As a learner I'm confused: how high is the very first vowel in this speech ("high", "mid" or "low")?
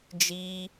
high